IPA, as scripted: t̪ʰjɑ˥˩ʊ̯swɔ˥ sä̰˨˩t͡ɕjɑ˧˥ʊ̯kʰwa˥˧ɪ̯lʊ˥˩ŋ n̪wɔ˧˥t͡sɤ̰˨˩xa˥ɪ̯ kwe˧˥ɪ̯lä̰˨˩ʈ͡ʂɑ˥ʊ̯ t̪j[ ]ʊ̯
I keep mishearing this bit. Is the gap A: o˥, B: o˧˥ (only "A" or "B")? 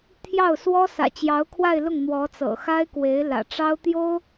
A